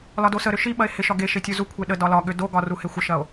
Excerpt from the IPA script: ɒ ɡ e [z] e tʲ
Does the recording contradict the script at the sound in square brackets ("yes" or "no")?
yes